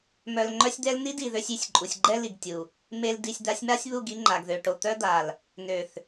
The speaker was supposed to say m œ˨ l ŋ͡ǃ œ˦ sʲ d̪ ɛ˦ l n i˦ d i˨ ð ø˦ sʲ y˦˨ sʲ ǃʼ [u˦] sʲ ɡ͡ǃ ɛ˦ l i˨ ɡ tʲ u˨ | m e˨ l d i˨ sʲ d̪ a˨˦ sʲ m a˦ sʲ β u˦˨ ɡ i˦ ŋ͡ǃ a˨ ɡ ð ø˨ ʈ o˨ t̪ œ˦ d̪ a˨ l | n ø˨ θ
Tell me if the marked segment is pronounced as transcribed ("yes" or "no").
no